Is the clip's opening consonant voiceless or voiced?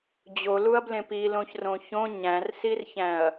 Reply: voiced